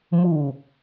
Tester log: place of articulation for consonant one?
labial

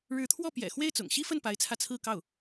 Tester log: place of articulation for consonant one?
retroflex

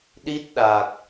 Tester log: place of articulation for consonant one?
alveolar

